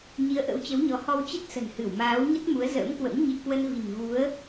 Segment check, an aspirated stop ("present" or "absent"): absent